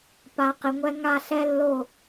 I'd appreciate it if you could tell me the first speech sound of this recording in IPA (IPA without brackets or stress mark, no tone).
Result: p